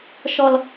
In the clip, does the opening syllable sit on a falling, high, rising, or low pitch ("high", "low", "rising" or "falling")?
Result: high